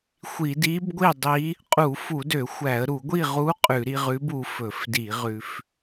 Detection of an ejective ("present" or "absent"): present